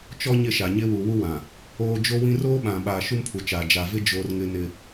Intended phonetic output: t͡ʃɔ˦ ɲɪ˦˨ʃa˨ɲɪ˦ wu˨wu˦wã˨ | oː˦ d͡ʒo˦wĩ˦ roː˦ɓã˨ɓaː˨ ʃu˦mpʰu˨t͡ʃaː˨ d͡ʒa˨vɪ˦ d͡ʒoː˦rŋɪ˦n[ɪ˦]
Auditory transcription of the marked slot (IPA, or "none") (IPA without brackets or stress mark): ɪ˦